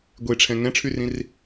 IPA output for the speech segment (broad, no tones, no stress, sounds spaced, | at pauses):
ɡʷ e ʈ͡ʂʰ ɛ̃ ŋ ɛ̃ ʈ͡ʂʰ y r ĩ r